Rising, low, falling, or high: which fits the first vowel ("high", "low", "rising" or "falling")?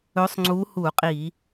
rising